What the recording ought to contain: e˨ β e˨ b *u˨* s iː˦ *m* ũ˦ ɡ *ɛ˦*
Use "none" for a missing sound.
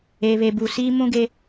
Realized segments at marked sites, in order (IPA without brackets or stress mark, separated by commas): u˨, m, e˦